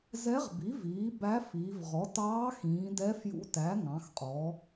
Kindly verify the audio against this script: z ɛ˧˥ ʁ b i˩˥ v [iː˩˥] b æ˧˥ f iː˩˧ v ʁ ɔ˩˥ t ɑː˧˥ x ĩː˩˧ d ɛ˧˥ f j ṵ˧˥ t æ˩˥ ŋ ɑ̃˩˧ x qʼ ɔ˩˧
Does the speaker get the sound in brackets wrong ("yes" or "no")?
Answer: no